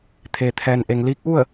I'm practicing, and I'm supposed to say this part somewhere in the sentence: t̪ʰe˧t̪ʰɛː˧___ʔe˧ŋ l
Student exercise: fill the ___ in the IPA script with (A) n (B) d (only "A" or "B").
A